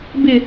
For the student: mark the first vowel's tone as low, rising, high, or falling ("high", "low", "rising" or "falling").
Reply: low